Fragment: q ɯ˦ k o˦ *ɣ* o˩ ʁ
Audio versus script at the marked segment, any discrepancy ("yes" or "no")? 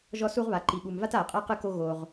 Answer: no